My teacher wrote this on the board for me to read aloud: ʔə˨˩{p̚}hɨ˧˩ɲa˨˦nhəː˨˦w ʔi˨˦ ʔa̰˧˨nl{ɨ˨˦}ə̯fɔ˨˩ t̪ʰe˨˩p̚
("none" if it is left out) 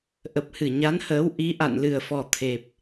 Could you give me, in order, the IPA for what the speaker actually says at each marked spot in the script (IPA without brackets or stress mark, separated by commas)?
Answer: p̚, ɨ˨˩